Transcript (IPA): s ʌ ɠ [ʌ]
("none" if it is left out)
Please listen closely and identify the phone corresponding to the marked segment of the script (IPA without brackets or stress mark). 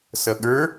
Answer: ə˞